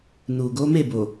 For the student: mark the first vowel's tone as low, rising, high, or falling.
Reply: low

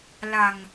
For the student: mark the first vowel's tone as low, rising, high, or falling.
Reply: low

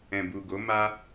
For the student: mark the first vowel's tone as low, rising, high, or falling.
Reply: low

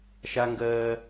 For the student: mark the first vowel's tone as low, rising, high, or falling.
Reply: high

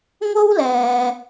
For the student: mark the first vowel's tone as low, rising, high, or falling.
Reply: high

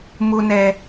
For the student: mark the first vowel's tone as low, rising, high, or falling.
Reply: low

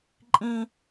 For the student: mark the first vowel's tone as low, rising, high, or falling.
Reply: high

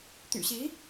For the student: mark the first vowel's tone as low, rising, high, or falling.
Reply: low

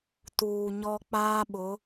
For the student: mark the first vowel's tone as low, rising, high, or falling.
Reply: low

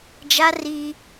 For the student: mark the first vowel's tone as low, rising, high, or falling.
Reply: high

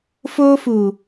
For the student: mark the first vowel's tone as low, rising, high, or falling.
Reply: high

